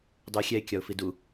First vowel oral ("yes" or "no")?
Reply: yes